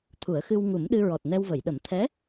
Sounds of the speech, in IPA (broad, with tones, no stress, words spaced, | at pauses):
t̪ʰu˨˩˦ə̯xɨ˧w ŋu˨˩˦mɗɨ˧ ɹɔ˨˩t̚nɛ˧wvə˨˩˨jɗə˨˩˦m t̪ʰɛ˧˥